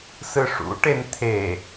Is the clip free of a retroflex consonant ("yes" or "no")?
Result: no